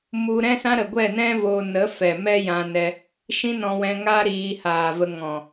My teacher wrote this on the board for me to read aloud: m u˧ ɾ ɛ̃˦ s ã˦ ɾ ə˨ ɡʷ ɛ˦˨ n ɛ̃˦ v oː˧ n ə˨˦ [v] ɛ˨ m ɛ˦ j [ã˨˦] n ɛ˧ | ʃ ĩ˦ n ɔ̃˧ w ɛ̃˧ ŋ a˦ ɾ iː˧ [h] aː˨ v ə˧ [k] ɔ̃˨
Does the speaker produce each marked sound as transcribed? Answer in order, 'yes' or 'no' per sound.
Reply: no, no, yes, no

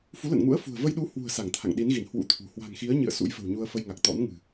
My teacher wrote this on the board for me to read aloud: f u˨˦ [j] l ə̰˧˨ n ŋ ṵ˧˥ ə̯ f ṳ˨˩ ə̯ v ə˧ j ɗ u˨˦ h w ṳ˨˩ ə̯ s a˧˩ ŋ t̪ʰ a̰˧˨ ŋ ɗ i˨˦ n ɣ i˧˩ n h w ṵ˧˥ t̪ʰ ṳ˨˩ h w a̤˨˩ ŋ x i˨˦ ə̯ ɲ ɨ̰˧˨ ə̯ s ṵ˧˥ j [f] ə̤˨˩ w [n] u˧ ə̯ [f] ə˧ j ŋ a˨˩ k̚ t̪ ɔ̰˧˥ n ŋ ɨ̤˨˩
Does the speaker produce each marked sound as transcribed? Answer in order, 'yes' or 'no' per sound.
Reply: no, yes, no, yes

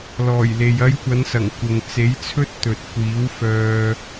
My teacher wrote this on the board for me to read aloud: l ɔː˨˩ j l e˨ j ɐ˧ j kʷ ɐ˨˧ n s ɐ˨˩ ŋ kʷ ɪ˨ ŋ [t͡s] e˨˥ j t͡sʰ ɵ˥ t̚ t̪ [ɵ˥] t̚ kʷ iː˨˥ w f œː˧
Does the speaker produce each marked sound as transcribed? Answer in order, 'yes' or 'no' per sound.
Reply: yes, no

